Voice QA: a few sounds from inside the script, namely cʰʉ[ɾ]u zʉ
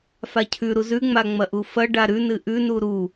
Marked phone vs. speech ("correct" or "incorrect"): correct